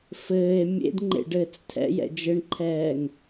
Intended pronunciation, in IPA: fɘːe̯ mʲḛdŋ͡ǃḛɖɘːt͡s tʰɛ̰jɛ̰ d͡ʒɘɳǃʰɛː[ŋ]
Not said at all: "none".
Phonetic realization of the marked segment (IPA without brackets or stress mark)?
ŋ